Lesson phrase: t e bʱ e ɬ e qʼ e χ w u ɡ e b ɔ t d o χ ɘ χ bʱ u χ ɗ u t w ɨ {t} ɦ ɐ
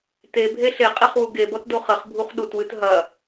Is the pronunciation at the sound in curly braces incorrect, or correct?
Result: correct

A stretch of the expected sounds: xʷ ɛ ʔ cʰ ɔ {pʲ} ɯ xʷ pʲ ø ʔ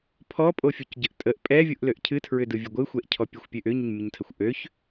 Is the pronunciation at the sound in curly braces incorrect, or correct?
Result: correct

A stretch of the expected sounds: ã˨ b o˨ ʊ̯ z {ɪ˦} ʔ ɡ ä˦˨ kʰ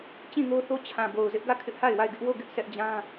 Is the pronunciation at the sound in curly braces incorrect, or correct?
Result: correct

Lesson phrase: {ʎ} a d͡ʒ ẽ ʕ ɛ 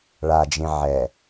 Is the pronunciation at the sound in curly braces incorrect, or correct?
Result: incorrect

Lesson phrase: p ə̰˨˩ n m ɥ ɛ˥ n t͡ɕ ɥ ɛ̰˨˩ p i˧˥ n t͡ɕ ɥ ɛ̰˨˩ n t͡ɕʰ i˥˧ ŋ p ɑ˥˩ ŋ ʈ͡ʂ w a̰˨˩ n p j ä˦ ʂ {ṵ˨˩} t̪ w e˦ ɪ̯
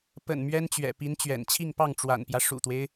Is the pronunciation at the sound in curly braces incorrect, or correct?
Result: correct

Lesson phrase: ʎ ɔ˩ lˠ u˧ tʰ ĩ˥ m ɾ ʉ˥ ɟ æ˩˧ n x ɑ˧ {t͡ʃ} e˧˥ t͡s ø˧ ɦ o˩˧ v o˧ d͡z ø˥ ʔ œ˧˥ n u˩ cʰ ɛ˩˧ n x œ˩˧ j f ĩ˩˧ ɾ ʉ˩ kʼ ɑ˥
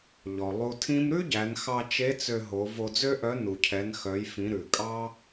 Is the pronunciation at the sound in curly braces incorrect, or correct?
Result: correct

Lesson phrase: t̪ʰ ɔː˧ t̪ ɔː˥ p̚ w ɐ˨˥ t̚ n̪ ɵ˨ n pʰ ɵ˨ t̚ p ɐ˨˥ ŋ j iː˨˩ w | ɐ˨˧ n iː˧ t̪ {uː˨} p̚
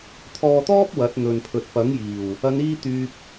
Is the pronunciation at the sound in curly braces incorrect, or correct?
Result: incorrect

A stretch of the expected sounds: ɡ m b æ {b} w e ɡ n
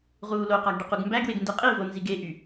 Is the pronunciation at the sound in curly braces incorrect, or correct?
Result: incorrect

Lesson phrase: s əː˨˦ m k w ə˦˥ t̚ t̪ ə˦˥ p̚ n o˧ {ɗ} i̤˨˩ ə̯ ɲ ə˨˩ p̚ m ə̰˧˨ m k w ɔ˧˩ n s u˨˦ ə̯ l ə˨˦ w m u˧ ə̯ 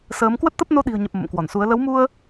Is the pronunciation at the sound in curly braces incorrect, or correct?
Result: correct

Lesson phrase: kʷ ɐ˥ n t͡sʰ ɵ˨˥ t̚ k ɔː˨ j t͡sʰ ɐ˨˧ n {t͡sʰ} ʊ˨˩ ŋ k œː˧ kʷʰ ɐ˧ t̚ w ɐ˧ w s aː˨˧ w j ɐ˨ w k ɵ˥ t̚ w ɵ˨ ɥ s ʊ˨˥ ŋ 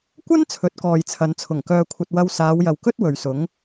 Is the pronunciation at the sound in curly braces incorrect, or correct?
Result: correct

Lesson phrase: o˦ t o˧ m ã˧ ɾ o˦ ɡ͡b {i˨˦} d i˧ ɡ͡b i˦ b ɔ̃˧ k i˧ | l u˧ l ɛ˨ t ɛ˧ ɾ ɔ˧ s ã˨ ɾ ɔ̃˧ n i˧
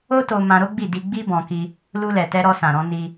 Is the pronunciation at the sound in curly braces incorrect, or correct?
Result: incorrect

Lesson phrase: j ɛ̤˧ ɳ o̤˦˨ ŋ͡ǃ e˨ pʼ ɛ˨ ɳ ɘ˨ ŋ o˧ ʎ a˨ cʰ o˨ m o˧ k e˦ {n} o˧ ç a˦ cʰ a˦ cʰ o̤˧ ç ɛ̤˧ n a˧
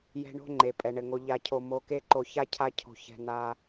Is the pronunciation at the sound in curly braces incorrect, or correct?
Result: incorrect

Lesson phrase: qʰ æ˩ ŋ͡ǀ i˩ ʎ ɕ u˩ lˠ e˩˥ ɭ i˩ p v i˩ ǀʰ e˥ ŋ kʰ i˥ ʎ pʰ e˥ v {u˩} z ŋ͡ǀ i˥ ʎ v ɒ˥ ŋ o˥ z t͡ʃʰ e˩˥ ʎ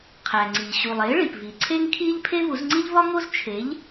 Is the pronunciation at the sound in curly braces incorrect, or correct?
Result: incorrect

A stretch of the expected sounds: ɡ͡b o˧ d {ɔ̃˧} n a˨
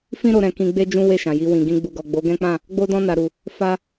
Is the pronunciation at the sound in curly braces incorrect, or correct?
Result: correct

